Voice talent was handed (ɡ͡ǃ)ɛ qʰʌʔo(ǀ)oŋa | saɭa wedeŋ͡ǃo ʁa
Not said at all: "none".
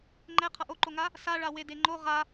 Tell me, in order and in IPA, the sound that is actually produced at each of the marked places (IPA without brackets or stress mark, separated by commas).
ŋ͡ǃ, ǃ